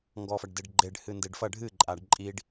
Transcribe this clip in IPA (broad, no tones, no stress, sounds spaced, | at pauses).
ŋ ɡ ɔ f ɐ ɖ d e ɖ ɡ͡ǃ e ɖ h ɨ n d e ɖ f ɐ ɖʱ ɨ ǃʼ a ɖ ǃʼ i ɖ